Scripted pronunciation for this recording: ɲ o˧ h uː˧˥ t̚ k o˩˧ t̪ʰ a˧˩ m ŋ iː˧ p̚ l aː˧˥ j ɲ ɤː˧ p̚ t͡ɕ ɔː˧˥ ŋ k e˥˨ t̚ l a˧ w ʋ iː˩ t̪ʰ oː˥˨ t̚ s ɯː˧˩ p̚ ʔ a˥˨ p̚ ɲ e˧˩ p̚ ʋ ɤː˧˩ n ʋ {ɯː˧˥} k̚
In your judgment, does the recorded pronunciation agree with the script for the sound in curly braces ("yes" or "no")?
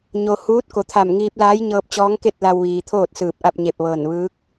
yes